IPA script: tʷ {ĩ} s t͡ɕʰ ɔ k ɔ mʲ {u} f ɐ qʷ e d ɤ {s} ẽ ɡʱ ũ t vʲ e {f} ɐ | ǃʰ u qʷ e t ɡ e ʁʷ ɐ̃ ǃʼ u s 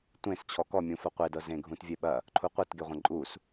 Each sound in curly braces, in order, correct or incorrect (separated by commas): incorrect, incorrect, incorrect, incorrect